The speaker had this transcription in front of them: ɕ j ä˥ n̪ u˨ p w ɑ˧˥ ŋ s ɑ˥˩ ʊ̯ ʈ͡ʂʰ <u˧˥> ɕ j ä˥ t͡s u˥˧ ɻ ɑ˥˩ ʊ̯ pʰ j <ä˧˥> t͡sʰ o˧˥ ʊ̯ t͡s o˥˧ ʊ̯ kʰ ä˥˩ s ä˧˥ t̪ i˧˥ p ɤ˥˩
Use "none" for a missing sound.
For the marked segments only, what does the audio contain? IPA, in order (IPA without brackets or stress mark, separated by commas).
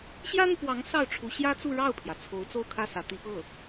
u˧˥, ä˩